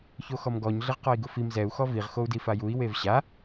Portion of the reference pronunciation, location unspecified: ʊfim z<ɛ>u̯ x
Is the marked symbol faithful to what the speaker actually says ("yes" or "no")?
yes